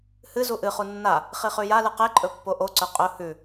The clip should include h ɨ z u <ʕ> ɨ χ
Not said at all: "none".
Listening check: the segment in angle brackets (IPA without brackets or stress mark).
ʔ